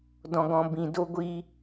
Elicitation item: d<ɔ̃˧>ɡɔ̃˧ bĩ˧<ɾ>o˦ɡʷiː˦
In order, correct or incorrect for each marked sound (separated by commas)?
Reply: correct, incorrect